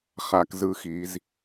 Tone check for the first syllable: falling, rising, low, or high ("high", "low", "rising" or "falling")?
rising